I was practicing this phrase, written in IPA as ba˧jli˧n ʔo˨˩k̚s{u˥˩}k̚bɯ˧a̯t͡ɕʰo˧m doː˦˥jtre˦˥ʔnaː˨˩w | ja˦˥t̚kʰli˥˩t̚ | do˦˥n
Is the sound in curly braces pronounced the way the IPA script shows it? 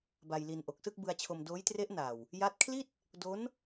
no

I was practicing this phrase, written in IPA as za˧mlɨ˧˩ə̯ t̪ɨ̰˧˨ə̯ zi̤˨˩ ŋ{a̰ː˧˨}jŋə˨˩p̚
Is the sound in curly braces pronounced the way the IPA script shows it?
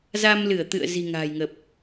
no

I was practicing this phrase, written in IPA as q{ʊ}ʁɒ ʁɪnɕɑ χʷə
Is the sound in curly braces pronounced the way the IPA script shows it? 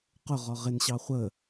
yes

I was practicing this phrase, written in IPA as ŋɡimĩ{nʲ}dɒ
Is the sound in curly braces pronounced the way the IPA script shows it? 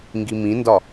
no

